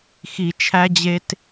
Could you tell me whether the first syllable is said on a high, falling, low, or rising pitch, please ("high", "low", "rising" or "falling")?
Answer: low